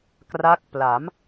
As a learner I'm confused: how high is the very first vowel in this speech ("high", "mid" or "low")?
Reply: low